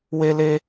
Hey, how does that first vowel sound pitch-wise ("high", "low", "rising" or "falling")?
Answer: high